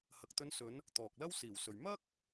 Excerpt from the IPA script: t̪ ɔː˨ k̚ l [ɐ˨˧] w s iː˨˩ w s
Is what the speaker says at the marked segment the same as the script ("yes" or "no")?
no